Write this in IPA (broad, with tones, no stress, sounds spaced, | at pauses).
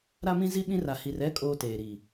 ɾ a˦ m ĩ˦ z i˦ ɓ ĩ˦ r a˨ h i˨ r ɛ˦ kʼ oː˦ t eː˨ ɾ i˨